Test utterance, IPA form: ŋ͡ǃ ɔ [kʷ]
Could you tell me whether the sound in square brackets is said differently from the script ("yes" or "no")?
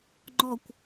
no